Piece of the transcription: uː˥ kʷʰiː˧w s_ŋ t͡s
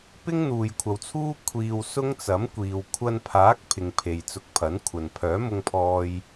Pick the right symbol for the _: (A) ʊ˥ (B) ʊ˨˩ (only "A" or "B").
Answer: A